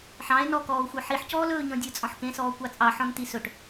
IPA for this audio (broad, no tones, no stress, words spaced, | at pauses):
ħɑ̃e̯ nɔkɔːo̯xʷə˞ ħiħcɔːlɵːɲɔ̃ dʲə˞t͡sʼɔ̃ħkẽsɔː kʷɑt͡sʼɑħɔ̃n tisɵʈ